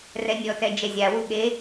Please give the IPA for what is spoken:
r ɛ nʲ ɔ t ɛ d͡ʒ ɛ zʲ a w u ɠ e

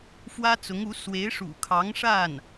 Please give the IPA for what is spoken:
f w ä˥ t͡s ʊ˧˥ ŋ u˧˥ s w e˧˥ ɪ̯ ʂ ṵ˨˩ kʰ ɑ˧˥ ŋ ʂ a˥˩ n

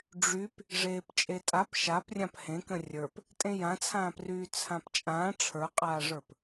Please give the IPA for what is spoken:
ɖ͡ʐ y p | ʐ eː p t͡ʃʼ e tʼ a p ʃ a p rʲ ã p h ẽ k ə̃ rʲ ə˞ p | tʼ ẽ j ã t͡sʰ ãː p r yː t͡sʰ ã p t͡ʃʼ ãː ʈ͡ʂʰ ə˞ qʼ aː ʐ ə˞ p

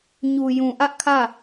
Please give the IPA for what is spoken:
ɲ u˨ j ũ˨ ʔ ä˦ ʔ kʰ ä˦˨

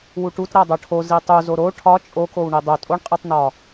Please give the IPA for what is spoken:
w u ʈ u t ɾ æ dˤ o ʈʰ o z i tˤ u z o ɾ o ʈʰ ɒ t͡ʃʼ o k o w ɳ i dˤ o tʼ o ɳ qʼ i tˤ n ɒ

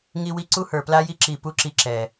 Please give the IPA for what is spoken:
ŋ i˧ w i˧ ǀ u˦ h ə˞˨ p l a˦ j i˦ ǁ i˨ p u˦ ǁ i˧ ǁ ɛ˨

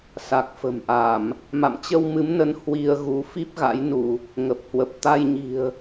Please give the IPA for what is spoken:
s a˨˩ k̚ f ə̤˨˩ m ʔ a˧˩˨ m | m a̰˧˨ m t͡ɕ ə˧ w m ɨ˨˦ m n ə˨˦ n h w i˧ ə̯ ɣ u˨˦ f i˦˥ p̚ ɣ a̰˧˥ j n u˧˩˨ | ŋ ə˨˩ p̚ h w ə˨˩ p̚ t̪ a˧ j ɲ i̤˨˩ ə̯

